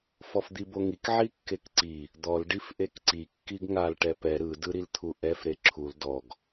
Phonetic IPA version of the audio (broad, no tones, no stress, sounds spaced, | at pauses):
f ɔ f d̪ i b o ŋ i k ʕ i kː e k ǀ i | d̪ ɔ l ɖ i f ʔ e k ǀ i kː i ɡ ŋ a l ʈ ɛ p ɛ ɾ ɯ d ɯ ɾ i l t̪ʰ u ʔ ɛ f ɾ e ǁʰ u l d ɔ ɡ